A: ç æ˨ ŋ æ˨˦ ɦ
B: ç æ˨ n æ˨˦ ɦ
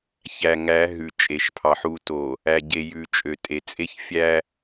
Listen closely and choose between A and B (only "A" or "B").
A